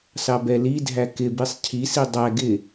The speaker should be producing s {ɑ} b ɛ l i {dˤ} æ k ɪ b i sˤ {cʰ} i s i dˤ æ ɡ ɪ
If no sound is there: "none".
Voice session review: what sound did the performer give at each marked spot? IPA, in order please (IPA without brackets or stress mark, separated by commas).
ɑ, dʱ, cʰ